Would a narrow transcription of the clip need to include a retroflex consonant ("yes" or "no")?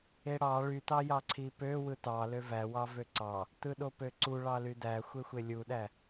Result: yes